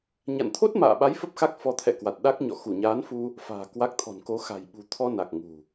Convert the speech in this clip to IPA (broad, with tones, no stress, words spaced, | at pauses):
ɲa̰˧˨nt̪ʰo˦˥t̚ma̰ː˧˨ɓa˨˦j fə˦˥p̚xa˦˥k̚ fɔ˨˦t̪ʰɛ̰˧˨kwa˨˩t̚ ɗa˦˥k̚ ɲɔ̰˧˨ xu˧˩ɲaː˨˦nfu˧ | fa̤ː˨˩ kwa˦˥k̚ t̪ʰɔ̤˨˩nko˨˦ xa̤˨˩jɓṳ˨˩ t̪ʰɔ˧na˨˩k̚ŋṳ˨˩